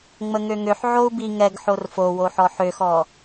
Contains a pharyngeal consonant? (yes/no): yes